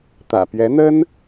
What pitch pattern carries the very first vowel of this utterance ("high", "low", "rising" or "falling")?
low